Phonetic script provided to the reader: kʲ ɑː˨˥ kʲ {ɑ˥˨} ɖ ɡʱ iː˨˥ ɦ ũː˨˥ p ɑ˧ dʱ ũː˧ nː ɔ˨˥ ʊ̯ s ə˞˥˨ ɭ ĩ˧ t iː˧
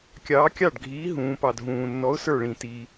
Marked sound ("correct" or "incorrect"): correct